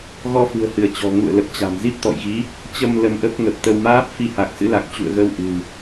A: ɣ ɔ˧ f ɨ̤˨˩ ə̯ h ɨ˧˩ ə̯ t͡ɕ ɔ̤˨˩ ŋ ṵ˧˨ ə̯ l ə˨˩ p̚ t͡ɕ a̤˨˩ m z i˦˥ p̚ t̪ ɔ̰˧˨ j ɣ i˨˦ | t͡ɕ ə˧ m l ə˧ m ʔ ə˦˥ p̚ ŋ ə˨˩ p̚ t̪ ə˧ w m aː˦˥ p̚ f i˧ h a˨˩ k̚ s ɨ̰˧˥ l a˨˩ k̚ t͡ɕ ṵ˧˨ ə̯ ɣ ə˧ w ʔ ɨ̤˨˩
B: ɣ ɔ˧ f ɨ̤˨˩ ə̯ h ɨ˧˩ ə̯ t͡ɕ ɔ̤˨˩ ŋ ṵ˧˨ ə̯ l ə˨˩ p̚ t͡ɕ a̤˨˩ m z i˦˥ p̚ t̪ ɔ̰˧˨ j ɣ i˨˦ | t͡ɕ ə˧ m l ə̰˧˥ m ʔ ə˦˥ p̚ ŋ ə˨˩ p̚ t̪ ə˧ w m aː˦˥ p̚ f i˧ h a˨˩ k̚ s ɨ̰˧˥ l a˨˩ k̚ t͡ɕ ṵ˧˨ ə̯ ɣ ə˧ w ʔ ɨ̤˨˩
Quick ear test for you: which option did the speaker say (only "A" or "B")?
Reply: A